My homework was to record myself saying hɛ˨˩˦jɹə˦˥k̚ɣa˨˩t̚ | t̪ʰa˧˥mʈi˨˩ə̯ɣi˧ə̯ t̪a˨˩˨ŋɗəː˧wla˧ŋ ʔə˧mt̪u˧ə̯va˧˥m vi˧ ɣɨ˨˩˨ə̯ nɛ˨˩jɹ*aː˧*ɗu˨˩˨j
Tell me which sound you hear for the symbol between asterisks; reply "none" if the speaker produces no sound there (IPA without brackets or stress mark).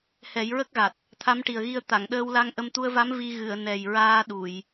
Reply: aː˧